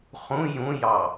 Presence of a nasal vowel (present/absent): present